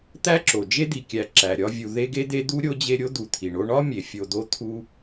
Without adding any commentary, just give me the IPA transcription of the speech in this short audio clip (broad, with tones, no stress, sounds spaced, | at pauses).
t̪ æ˦ ǁ o˩ d͡ʒ e˦ d̪ i˩ kʲ æ˩ ǁ æ˩ ɾʲ ɒ˦ vʲ u˨ ð e˦ ɡ e˥ d̪ e˦ d̪ u˥ ɾʲ o˥ d͡ʑ e˦ ɾʲ o˥ d̪ u˨ t̪ʰ i˩ ɳ o˦ ɳ ɒ˥ mʲ e˩ fʲ o˨ d̪ o˦ t̪ʰ u˦